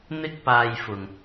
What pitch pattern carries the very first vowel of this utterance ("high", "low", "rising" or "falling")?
high